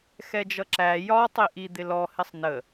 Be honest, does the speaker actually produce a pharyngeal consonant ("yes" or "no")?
no